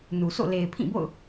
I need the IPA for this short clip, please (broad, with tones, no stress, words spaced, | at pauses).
nu˨sʰo̰˦˨ le˨ɪ̯pʰĩ˦˨bo̰˦˨ʊ̯